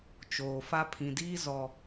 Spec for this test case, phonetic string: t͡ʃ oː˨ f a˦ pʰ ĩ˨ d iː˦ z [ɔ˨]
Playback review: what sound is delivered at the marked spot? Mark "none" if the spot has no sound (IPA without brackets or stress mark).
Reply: ɔ˨